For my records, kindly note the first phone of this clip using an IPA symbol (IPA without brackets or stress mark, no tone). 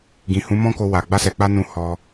ɡ